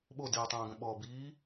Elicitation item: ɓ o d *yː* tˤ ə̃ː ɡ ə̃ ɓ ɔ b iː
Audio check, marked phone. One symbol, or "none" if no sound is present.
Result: iː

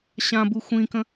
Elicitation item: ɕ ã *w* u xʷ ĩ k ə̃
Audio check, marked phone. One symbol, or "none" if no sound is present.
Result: b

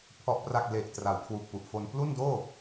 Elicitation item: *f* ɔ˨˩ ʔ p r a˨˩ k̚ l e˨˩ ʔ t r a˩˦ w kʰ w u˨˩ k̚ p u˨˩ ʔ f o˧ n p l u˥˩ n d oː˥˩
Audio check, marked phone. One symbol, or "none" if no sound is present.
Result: pʰ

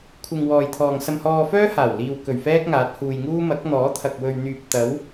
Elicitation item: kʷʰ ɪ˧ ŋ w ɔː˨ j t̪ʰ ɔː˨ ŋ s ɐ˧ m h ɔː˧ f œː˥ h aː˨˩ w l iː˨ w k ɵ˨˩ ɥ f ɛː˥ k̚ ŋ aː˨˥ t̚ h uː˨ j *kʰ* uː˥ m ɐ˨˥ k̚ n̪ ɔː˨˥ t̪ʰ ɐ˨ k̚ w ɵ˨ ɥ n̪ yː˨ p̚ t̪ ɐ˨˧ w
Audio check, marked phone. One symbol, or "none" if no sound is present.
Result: ŋ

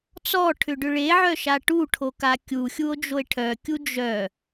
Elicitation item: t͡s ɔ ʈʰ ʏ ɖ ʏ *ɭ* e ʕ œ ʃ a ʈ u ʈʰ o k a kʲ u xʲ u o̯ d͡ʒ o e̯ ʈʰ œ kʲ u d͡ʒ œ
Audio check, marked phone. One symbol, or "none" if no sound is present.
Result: ɭ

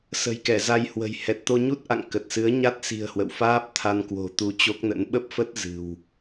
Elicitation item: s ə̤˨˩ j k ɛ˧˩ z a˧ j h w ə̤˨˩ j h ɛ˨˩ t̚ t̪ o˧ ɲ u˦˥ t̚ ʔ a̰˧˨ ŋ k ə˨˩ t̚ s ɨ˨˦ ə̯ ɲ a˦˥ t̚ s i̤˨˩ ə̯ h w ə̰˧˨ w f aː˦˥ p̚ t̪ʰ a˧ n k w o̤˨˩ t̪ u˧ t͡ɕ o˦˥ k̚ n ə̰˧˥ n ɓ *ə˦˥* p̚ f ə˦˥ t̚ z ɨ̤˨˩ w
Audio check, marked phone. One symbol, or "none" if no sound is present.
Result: ə˦˥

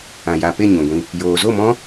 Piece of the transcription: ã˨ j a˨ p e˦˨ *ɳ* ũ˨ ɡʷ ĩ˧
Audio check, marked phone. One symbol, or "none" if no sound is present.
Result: ɲ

